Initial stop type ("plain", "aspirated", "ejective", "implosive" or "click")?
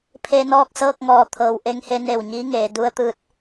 aspirated